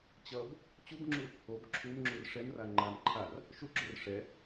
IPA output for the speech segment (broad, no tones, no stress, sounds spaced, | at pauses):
t͡ɕ ʌ b | t͡ɕ u b ŋ͡ǁ u | o b ǁʰ u m ŋ͡ǁ u r ʂ ɛ m r a ŋ͡ǃ a m ǃʰ a r | ʃ u ɡ͡ǁ o r ʂ ɛ